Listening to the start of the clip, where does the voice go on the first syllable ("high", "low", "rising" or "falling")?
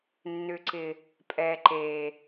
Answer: low